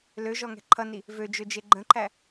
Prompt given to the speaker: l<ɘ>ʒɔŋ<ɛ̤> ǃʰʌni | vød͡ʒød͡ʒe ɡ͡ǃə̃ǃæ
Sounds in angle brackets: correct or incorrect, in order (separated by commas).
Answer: incorrect, correct